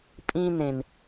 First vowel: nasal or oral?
nasal